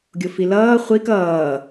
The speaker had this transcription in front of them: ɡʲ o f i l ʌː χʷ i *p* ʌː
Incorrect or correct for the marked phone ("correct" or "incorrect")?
incorrect